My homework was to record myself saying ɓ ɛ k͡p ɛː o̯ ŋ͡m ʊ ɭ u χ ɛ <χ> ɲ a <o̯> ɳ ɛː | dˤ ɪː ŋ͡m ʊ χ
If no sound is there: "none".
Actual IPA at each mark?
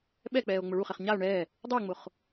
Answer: χ, o̯

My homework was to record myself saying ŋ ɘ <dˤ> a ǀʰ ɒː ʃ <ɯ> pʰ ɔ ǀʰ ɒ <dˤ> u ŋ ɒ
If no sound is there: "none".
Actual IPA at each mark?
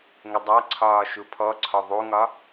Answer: dˤ, u, ðˤ

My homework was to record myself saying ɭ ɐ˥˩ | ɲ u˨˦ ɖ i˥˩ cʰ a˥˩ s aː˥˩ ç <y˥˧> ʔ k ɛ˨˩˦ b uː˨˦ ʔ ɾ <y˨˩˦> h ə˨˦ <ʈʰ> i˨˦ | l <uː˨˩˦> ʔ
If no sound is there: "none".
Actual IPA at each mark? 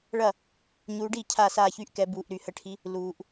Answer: y˥˧, y˨˩˦, ʈʰ, uː˨˩˦

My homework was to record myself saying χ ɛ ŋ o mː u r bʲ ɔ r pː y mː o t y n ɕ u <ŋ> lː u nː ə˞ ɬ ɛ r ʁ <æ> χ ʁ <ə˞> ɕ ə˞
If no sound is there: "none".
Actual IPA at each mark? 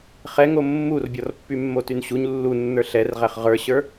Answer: ɲ, æ, ə˞

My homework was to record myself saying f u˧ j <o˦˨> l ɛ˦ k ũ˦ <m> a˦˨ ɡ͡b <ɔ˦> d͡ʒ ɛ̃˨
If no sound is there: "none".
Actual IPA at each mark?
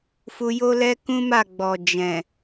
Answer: o˦, m, ɔ˨

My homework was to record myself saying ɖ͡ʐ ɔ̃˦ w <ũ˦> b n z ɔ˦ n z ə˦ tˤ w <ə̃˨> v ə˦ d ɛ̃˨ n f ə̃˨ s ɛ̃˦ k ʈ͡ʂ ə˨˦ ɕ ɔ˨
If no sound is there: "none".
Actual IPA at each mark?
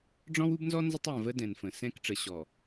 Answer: u˦, ə̃˨

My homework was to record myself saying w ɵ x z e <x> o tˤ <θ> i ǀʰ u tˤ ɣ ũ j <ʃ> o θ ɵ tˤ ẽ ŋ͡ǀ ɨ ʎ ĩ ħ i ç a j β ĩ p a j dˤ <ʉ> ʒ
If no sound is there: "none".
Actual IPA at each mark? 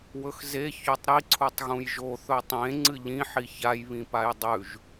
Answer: ç, ɾ, ʒ, ʉ

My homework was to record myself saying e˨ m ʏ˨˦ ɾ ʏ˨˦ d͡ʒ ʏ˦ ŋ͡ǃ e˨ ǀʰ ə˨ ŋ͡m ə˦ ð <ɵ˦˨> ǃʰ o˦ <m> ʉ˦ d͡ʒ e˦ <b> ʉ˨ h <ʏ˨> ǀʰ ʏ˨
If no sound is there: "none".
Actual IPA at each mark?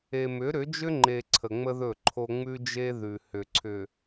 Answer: ɵ˦˨, ŋ͡m, ð, ʏ˨

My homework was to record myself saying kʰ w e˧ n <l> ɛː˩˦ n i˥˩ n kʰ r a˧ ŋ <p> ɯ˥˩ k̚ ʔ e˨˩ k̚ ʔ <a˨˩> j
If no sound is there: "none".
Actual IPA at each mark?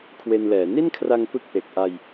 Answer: l, p, a˧

